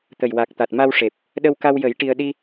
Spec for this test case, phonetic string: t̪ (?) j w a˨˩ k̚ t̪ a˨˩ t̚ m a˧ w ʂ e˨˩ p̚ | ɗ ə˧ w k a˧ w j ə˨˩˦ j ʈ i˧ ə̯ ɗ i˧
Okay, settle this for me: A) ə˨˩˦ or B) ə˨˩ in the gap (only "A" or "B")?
B